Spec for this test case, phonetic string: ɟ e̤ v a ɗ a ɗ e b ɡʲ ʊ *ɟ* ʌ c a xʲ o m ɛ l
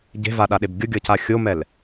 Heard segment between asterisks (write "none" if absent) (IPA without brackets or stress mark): ɡʲ